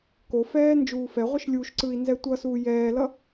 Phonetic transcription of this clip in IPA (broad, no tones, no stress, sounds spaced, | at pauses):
k o f ɛː n d͡ʒ uː f ɛ ʁʷ ɯ ʃ lʲ u ʃ ǀ ɯ i̯ n z ɛ tʷ ʌ s uː j ɛː l ʌ